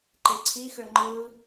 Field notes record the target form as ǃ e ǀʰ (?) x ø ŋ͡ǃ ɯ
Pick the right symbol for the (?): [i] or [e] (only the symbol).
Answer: i